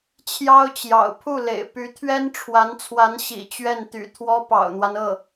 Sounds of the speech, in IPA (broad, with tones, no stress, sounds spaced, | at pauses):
t͡ɕʰ j ɑ˥ ʊ̯ t͡ɕ j ɑ̰˨˩ ʊ̯ pʰ u˥˩ l ḛ˨˩ ɪ̯ p y˧˥ t̪ʰ ɥ ɛ˥ n ʈ͡ʂʰ w a˧˥ n t͡sʰ w a˧˥ n ɕ ḭ˨˩ t͡ɕ ɥ ɛ˥˩ n t̪ y̰˨˩ t̪ʰ w ɔ˥ p ɑ̰˨˩ ʊ̯ n̪ w a˦ n ɤ˥˩